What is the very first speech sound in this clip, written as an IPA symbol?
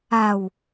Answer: a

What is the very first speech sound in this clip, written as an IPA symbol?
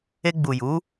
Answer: e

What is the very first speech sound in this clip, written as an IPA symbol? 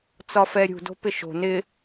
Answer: t͡s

